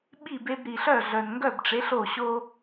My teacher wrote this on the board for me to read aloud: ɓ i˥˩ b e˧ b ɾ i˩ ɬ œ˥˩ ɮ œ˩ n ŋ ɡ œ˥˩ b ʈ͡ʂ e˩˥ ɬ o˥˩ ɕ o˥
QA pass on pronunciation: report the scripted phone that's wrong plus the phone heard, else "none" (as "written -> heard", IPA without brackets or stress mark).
none